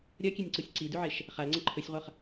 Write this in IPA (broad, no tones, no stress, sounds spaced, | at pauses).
ɾʲ ɐ kʲ e nʲ ǀ u sʲ ǀ i d ʉ ʕ e ʃ | χ a l ŋ͡ǀ ɐ ǃʰ ɵ sʲ ʁʷ ɐ χ